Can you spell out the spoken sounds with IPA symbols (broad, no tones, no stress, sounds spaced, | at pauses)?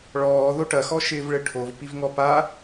ɭ ɔː ð o ʈ ɐ x ɔ ʃ ɪː v ɭ ɘ ʈʰ o v p i v ŋ ɔ p a